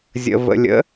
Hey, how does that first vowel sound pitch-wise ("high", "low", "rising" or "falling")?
low